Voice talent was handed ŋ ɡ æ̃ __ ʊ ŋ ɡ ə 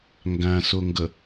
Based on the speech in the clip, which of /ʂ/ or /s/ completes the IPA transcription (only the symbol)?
s